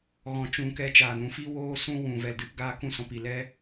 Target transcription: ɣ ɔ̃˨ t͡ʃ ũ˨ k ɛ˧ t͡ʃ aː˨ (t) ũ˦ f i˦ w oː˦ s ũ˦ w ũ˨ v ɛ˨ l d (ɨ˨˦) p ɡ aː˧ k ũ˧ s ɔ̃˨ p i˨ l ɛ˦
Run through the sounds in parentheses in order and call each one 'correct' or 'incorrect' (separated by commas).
incorrect, correct